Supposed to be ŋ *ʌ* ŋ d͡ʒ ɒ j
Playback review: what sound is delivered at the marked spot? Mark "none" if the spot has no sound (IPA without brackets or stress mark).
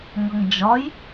ʌ